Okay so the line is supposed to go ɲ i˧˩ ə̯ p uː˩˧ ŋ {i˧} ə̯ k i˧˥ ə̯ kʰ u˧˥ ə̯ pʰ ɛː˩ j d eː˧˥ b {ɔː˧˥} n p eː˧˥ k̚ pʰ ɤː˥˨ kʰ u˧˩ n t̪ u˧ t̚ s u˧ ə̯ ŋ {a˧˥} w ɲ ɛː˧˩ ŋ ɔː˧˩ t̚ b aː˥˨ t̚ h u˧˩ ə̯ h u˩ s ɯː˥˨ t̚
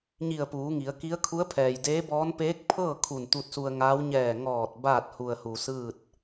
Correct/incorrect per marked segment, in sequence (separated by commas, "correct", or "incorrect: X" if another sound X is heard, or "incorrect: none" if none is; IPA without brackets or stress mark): incorrect: i˩˧, correct, incorrect: aː˧˥